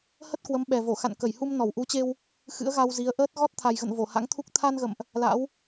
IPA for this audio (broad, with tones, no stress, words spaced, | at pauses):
hə˦˥t̚kwə˨˦m ɓɛ˨˩vo˧˩ xa̰˧˨nkə˧˩jhu˧mnɔ˧˩w ʔu˨˦t͡ɕe˧w | xɨ̰˧˥ə̯ɣa˧wzi˨˦ə̯ ʔəː˦˥t̚ ɣɔ˦˥t̚t̪ʰa˨˩jɣə̰˧˨n vo˧˩ha̰˧˥ŋt̪ʰu˦˥k̚ t̪ʰa˧nɣə̰˧˨mʔ | la̰˧˥w